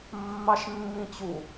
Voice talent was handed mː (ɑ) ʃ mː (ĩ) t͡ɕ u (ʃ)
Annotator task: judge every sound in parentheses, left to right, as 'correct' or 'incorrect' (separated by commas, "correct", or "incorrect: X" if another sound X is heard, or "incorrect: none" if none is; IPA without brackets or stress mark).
correct, correct, incorrect: none